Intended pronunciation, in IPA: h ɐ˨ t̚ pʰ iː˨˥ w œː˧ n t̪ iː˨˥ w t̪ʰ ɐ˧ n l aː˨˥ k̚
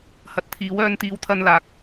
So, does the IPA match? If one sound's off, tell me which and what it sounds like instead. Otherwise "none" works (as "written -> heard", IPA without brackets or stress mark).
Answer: pʰ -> t̪ʰ